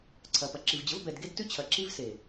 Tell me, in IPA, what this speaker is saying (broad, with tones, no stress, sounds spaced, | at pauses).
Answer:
ǀʰ ɐ˨ p ɐ˨ ǁ i˨ v d͡ʑ ə˨˦ v b ɛ˨ d ɡ e˦ d t ʉ˦ t͡ɕʰ ɐ˨ ǁ i˦ v s e˨